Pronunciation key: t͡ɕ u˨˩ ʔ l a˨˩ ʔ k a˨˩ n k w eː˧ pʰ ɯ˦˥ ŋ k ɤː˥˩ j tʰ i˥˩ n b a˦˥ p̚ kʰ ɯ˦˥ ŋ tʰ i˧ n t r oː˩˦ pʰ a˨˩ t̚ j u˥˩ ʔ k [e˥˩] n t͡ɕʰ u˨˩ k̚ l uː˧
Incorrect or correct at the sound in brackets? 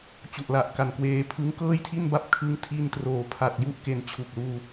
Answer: incorrect: e˩˦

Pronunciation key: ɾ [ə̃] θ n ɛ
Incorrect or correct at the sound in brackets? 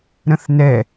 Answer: correct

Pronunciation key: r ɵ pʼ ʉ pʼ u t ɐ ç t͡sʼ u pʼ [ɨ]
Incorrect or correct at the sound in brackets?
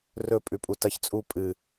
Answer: correct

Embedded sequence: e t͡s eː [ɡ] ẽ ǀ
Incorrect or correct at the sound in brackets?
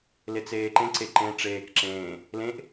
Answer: incorrect: ǃ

